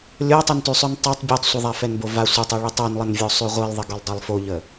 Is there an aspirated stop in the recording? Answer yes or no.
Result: no